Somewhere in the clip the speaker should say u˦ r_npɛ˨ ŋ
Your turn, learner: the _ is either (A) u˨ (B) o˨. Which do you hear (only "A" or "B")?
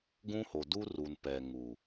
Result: A